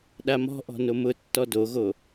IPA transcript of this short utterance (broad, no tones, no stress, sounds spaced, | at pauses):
ɗ a m ɔ̤ ʔ ɔ̤ n o m ʊ tː ɔ d o ɣ o